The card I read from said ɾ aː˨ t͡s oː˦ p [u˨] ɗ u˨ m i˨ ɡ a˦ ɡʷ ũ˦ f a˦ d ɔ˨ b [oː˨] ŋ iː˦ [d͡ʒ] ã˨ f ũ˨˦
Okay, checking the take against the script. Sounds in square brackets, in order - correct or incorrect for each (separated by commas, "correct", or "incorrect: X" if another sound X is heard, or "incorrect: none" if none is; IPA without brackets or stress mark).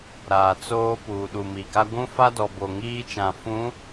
incorrect: uː˨, incorrect: o˨, incorrect: t͡ʃ